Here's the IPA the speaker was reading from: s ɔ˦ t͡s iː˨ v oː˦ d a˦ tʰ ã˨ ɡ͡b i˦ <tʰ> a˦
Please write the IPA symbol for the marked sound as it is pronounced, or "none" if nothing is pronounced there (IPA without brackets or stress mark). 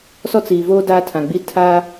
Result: tʰ